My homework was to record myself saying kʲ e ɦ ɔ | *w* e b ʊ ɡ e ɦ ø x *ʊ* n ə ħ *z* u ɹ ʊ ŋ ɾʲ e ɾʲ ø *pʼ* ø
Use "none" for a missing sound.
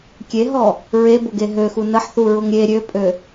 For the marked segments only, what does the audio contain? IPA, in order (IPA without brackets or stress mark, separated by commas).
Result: ɹ, u, θ, pʼ